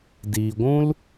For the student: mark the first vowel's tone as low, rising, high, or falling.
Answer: low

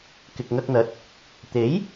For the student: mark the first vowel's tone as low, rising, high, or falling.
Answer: low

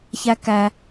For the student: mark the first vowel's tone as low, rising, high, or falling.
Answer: high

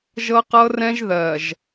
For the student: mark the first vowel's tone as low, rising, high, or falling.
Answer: high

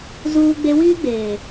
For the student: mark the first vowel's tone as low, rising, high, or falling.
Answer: high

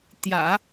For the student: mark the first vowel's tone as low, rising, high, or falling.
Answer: low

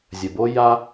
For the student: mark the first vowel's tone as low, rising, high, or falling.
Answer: low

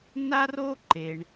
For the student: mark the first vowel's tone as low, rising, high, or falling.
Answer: high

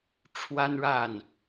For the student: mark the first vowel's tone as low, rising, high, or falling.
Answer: high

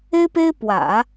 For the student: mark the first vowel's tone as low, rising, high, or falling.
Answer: high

